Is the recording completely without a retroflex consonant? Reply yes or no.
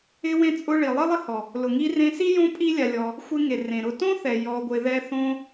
no